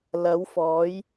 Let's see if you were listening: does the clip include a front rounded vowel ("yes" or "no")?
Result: no